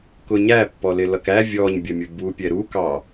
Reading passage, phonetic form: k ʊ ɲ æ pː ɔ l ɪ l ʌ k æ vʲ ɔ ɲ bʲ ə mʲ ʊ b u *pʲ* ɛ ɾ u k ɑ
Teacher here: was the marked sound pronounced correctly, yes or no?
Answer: yes